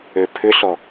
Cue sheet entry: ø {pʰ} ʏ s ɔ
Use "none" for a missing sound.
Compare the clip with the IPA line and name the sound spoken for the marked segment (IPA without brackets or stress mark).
pʰ